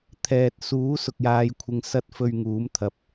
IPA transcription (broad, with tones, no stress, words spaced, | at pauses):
t̪ʰɛː˨t̚ suː˨˥ sʊ˧k̚jaː˧jkʷʰɪ˧ŋ sɐ˧t̚fɵ˨ɥ ŋuː˨˥mt̪ʰɐ˨p̚